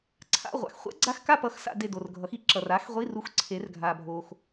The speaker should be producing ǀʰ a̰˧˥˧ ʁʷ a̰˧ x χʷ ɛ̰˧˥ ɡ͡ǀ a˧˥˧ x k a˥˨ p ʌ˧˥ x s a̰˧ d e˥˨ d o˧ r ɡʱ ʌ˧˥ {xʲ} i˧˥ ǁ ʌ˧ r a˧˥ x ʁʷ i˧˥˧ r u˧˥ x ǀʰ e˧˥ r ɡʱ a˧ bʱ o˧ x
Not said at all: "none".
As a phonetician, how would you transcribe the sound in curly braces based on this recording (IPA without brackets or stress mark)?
x